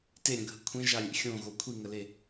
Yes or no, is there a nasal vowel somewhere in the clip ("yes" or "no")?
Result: yes